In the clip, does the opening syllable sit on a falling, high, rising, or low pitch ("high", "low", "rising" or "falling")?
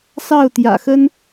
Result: falling